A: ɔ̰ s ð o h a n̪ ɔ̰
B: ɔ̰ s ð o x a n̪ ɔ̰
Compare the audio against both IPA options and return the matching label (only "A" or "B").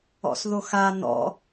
B